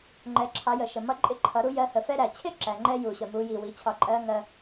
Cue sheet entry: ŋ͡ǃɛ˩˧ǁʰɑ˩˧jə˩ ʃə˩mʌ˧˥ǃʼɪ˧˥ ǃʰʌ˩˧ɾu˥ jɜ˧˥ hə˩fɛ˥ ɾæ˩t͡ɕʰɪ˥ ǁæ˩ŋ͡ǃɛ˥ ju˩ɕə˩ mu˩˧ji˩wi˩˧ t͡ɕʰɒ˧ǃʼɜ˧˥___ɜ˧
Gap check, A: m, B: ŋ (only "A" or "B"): B